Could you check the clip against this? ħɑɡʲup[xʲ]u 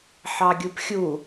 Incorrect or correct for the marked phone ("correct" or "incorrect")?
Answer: correct